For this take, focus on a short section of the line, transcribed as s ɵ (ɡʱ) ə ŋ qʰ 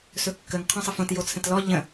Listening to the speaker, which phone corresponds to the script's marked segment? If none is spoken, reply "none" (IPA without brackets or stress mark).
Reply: kː